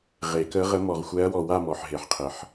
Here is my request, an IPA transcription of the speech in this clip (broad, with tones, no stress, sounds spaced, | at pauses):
ʁ e˨˩˦ k ə˧˥ ʁ ə˧˥ m ɔ˨ ʁ xʷ ɛ˧˥ ɐ̯ w ɔ˨ w a˥˧ m ɔ˨ ħ ɦ e˨˩˦ ħ qʰ ə˨ ħ